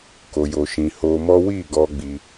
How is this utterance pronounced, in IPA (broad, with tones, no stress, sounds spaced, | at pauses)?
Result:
k o˧ j o˧ ʃ ĩ˧ h o˧ m ɔ˦ w i˦˨ ɡ ɔ˧ ɡ͡b i˧